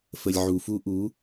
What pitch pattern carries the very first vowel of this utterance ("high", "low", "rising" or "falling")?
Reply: low